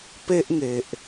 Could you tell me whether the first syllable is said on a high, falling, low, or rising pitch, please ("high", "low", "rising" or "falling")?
high